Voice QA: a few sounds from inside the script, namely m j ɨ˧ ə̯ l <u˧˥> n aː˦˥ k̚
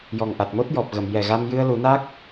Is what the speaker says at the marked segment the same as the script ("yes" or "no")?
no